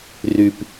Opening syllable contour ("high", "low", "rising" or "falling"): low